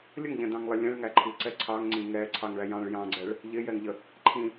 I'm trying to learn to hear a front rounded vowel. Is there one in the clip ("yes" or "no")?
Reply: no